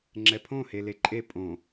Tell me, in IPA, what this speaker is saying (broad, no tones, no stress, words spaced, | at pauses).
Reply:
ŋ͡ǁɛpʰõ heleǃʼe pʼõ